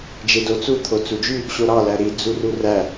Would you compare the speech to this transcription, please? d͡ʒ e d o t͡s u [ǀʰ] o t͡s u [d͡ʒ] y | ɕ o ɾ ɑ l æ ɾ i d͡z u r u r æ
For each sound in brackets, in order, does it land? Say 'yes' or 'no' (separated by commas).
no, yes